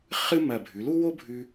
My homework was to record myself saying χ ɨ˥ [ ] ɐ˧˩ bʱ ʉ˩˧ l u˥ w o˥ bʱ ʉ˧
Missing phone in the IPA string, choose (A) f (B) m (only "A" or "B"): B